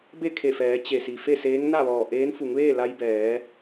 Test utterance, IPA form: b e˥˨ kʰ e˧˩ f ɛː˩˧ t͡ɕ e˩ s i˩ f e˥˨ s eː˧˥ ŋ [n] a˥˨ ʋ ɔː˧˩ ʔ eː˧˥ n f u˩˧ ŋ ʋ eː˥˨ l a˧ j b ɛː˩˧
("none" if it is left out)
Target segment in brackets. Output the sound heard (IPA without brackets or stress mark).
n